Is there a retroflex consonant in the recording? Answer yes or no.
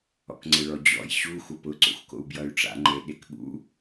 yes